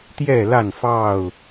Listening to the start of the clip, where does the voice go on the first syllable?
falling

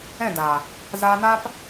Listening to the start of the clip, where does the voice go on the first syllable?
falling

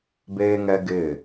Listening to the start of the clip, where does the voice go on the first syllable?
high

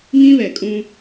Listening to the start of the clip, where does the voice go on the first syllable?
high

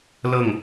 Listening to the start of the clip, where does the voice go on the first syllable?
falling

